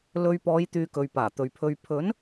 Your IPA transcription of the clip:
lɵ˧ɥ pɔː˨˧jt̪yː˨ kɵ˨ɥpaː˨˩t̪ɵ˨ɥpʰɵ˧ɥ pʰɵ˨˥n

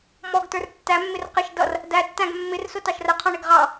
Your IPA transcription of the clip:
mɔɡtə˞r tːæmːɪr qɪʃ dʌr | dætːæ̃ɡ mːɪrsʊ tɑʃrəqʰɔ̃ɳɪɡ ʁɑ

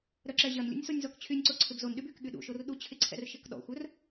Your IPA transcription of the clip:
ɾœǁɛʑɐnlʲṵnʲ sonʲzɔkt͡ɕʰynʲǀo ǀʰɪbzonɗyb yk ɠyɗṵʃor ɗut͡ɕʰɪǀʰɛ̰r ʃɪkɗɔ̰xʷœr

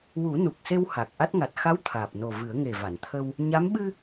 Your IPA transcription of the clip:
wu˨˩˦ nu˨˩k̚se˧w ha˨˩k̚ ʔa˦˥t̚ŋa˨˩t̚ xa˧˥w t̪ʰaː˨˩p̚ no˨˩ vɨ˨˩˦ə̯ŋe˨˩ va˨˩˨nt̪ʰə˧w | ɲa˧˥m ɓɨ˧

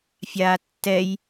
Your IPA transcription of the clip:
fʲaːtːɛj

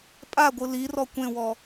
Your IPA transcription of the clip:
pʼaɡʷɯ lirɔ kʷẽwɔ

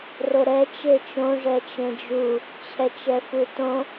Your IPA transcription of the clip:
roɾɛ t͡ʃet͡ʃõ ʐɛt͡ʃẽd͡ʒu | t͡ɕʰɛt͡ʃɛfutõ

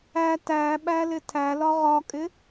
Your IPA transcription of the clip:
æ tæɓælɪ tʰælɒ ʁɒkʼɪ

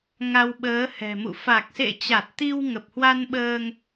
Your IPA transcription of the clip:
ŋa˧wɓəː˨˦hɛ̤˨˩mṵ˧˨ fa˨˩k̚sḛ˧˨t͡ɕa˨˩t̚ t̪i˧w ŋə˨˩p̚hwa˧nɓəː˧ŋ

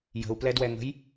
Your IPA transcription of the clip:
jə̤u̯plɛdwɛŋə̤j

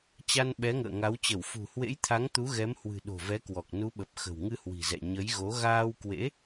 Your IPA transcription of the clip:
t͡ɕa˧nɓɛ˨˦ŋə̰ː˧˨ŋa˨˦w t͡ɕə˧˩wfṳ˨˩hwḛ˧˥jt̪ʰa˨˦ŋ t̪u˨˦ɣɛ˨˦mhwɨ̤˨˩ ɗo̤˨˩vɛ˨˦kwɔ˨˩k̚ nu˨˦ɓə˨˩p̚ xə̤˨˩wŋɨ˧hwi̤˨˩zɛ̰˧˨ ɲə˨˦jɣo˨˦ ɣaː˧wkwḛ˧˥

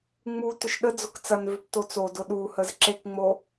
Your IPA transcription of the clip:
ŋ͡mu tʏʃɗəd͡zʊk t͡sɐnvʏp tot͡sodʊ ɗu həzǁekŋ͡mo

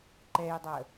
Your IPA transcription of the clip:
ǃɛjdˤə

